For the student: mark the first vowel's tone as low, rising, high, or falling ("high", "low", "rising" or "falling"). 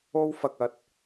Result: high